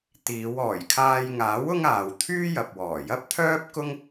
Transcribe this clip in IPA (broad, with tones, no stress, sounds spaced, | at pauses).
t̪ iː˨˧ w ɔː˨˩ j kʰ aː˧ j ŋ aː˨˥ w ʊ˥ ŋ aː˨ w t̪ʰ yː˥ j ɐ˨ p̚ w ɔː˨˩ j ɐ˥ p̚ t̪ʰ œː˥ p̚ k ʊ˥ ŋ